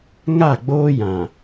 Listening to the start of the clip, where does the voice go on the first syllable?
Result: falling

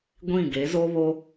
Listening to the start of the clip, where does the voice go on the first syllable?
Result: falling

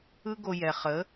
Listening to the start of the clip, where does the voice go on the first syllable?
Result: high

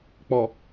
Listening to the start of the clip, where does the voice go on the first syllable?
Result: low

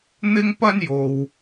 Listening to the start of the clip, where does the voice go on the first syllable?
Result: high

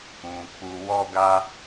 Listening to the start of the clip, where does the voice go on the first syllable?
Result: low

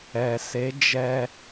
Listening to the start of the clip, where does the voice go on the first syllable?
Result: low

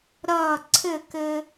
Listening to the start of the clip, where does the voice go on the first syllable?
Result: falling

